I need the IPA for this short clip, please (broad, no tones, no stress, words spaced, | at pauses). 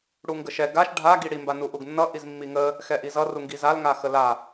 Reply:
ɽuŋɡəʃɛ ɡaʃ ɖʱa ɡiɽi mbanuʔuɡnːʌ ʔizmːiŋə | xɛʔizʌ ruŋɡizal ŋaxəla